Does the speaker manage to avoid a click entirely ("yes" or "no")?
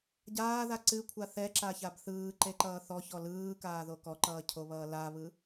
no